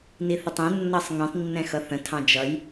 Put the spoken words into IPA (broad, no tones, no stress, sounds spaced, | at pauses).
n i θ ə tˤ ɛ̃ nː ʌ sˤ ŋ ɛ̃ tˤ nː ɛ̃ x ʌ θ ə̃ tʰ ɑ̃ d͡ʒ ʌ j